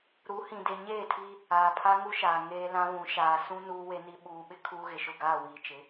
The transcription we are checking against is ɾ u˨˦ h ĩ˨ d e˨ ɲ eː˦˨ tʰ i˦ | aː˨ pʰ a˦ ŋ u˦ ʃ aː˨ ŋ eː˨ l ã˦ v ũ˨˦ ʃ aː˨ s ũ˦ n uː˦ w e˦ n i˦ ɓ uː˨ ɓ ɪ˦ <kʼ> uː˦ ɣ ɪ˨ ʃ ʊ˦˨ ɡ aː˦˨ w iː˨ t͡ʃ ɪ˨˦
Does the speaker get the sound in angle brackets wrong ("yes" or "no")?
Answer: yes